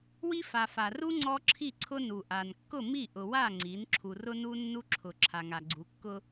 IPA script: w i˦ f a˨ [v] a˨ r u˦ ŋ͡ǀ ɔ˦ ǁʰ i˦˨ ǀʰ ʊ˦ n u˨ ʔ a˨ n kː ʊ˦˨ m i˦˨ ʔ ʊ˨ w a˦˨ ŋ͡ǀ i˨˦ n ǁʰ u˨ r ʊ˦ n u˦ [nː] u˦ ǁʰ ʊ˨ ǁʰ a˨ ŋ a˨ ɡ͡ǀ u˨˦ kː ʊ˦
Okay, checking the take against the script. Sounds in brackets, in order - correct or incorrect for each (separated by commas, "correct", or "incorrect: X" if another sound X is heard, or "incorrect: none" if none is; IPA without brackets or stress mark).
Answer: incorrect: f, correct